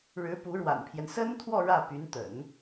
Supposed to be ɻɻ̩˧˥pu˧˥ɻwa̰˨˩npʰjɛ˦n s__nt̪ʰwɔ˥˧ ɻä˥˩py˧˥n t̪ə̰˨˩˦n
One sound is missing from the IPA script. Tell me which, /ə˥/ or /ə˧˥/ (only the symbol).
ə˥